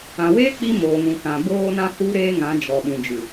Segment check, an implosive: present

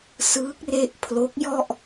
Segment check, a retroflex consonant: absent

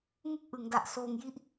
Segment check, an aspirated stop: absent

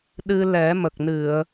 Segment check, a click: absent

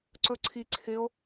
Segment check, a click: present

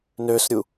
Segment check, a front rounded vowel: present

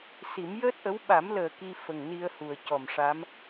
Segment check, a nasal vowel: absent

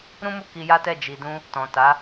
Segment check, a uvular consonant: absent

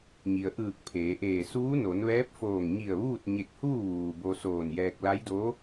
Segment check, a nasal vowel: absent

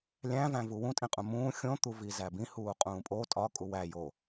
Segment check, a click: absent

